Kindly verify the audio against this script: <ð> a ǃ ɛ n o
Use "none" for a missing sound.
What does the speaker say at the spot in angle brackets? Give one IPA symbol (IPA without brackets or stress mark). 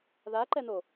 ð